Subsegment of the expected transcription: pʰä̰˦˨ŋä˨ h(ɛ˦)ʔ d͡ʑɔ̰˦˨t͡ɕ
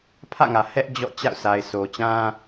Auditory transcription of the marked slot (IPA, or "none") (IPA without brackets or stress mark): ɛ˦